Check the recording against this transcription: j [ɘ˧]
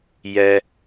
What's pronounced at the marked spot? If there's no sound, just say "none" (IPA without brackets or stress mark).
ɛ˧